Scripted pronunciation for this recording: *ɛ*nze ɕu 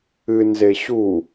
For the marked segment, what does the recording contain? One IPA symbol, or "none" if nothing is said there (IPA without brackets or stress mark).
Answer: ɨ